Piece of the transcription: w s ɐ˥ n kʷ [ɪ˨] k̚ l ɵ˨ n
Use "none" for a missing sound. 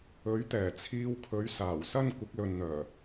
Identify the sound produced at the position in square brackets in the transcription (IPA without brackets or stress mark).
ɪ˨˥